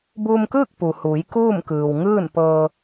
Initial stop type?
plain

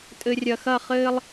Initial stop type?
ejective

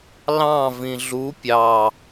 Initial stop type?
plain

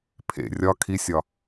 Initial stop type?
aspirated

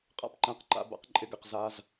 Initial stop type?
ejective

